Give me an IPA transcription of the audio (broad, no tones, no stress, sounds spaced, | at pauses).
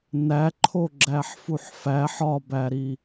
n æ ǃʰ o ɡ͡ǁ æ ħ f u ħ f æ ħ ɒ b æ ɾ i